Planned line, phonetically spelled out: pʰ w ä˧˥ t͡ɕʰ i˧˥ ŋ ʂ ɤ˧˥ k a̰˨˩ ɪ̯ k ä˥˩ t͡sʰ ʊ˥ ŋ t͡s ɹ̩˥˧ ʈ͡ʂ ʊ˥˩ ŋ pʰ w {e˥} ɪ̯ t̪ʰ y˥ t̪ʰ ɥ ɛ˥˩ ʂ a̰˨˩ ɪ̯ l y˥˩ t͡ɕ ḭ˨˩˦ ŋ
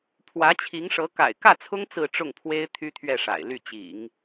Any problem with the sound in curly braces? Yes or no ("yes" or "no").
no